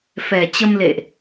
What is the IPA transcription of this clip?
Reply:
fɛ˨˩t͡ɕə˧mlḛ˧˨ʔ

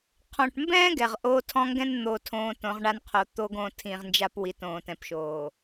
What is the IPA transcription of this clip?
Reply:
qʰɔ̃˨ʈmbɛ̃ː˦ ɡɛ˨ʁʔoː˦tʰɔ̃˦ŋɡɛ̃˦n n̪o˨ tʰõː˨ tõ˨˦ʁɳa˦nqʰo˨˦ t̪o˦ ɡõ˦˨tʰĩ˨ʁnd͡ʒa˦p wi˨˦tõː˨tɛ̃˨pʃoː˨

